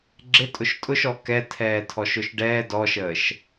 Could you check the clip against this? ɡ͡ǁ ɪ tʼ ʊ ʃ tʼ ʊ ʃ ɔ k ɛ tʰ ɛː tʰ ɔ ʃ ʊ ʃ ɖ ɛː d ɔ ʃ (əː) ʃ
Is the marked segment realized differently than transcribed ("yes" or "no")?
no